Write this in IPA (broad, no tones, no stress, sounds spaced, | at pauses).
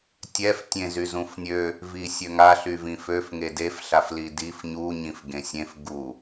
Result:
tʲ ɛ f tʲ ẽ z y z ũ f nʲ ø | v i sʲ ø ŋ a ɬ y v ĩ f ø f ŋ e d e f ɬ a f l i d i f ɲ u ɲ ĩ f ɡ ẽ sʲ ẽ f ɡ u